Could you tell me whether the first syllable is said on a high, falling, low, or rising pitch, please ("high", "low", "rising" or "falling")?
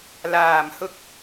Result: low